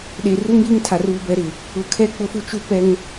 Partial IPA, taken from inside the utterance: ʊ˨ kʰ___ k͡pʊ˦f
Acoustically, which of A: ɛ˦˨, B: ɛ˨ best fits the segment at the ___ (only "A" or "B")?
A